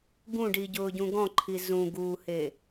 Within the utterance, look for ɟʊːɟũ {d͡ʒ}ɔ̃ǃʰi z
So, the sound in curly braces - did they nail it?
no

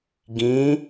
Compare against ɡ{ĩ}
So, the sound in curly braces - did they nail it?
yes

